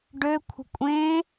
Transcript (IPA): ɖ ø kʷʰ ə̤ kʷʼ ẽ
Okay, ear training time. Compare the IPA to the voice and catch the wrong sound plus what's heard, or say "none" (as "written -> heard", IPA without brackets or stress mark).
none